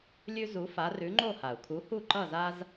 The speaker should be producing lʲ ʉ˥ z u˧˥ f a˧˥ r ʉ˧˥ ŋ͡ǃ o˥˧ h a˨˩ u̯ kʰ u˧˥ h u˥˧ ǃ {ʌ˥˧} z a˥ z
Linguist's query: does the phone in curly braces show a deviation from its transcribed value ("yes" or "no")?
no